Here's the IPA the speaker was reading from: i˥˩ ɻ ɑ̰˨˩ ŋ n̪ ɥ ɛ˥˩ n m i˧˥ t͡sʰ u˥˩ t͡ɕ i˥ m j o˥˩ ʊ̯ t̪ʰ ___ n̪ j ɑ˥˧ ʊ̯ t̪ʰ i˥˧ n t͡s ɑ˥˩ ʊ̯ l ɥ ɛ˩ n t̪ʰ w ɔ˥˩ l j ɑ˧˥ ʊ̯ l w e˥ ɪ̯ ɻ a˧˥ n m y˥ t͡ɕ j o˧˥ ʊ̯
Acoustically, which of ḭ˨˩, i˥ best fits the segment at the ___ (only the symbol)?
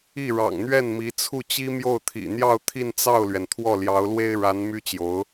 ḭ˨˩